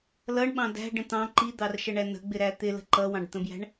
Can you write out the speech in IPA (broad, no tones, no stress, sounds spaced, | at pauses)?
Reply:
l ʌ ɳ ɓ ɑ̃ d æ̤ ɖ ə̃ t̪ ɑ̃ ǃ i d̪ ɑ r ʃ ə ɳ æ n ə̤ ɡ͡b ɪ ɾ æ t̪ ɪ l ə̤ ǃ ʌ w ɑ̃ ɖ t̪ ə̃ b j æ̤ ɳ